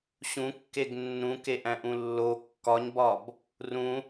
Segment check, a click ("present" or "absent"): absent